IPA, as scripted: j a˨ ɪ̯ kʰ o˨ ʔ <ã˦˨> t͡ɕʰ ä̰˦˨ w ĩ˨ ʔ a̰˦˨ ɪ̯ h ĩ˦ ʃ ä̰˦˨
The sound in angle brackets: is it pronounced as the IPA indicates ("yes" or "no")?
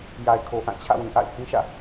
yes